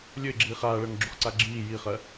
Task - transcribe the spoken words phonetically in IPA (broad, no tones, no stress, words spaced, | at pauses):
lʲɵɪ̯ɡ͡ǁiː χaːɭɜŋɡ͡ǁuχǀa ɡ͡ǁiː jiχɜ